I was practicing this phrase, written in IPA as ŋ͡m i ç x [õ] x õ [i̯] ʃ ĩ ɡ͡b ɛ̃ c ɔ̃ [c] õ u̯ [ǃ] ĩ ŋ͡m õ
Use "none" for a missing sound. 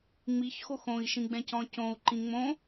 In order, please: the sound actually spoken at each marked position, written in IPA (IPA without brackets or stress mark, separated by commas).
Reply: o, i̯, c, ǃ